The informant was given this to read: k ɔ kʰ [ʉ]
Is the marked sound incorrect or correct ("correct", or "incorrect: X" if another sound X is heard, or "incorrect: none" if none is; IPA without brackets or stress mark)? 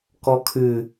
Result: correct